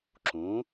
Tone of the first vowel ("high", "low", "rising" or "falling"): rising